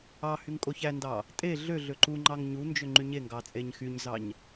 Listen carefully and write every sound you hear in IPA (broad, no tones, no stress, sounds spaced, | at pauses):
ɑ h y ŋ kʼ o ç æ n d ɑ | tʼ e ɮ ø ɮ ø ǃ u ŋ͡ǃ ɑ ŋ ɲ u n d͡ʒ ø ŋ͡ǃ y ɲ e ŋ ɡ ɑ t͡sʼ e ɲ x y ɲ z ɑ ɲ